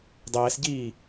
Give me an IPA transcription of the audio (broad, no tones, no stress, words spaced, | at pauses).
dˤɛːsɟiː